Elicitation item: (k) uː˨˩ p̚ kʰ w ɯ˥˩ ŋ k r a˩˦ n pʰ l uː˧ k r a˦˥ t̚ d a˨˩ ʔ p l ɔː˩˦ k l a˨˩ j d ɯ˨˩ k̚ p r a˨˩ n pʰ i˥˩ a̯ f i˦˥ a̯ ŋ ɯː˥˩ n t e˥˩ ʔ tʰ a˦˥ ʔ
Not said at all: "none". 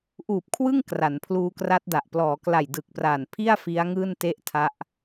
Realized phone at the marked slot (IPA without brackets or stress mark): ʔ